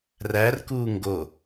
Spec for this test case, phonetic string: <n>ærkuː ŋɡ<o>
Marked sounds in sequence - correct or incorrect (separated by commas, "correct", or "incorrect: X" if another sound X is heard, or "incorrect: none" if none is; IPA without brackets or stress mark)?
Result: incorrect: r, correct